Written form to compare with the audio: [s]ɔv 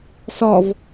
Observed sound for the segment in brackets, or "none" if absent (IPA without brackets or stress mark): s